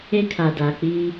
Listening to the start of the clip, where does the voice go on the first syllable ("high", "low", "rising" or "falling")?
high